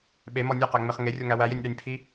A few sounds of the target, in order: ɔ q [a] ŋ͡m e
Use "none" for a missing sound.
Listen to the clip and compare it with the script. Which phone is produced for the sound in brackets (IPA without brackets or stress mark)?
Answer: æ